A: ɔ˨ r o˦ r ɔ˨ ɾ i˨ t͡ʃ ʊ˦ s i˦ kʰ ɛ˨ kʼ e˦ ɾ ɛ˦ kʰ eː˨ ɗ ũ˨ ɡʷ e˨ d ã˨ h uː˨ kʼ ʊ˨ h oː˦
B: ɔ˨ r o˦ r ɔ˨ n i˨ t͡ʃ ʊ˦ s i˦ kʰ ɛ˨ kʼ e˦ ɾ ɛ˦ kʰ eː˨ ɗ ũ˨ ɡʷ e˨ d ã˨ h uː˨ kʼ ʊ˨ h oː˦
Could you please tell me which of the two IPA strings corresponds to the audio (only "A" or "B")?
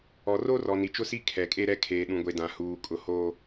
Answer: B